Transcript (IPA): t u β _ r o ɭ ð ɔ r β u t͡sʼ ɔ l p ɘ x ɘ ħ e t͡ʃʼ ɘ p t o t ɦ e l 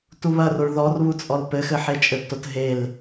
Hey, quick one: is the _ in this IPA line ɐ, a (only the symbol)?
ɐ